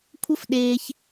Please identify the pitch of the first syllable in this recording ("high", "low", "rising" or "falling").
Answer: high